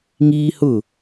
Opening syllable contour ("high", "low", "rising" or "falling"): high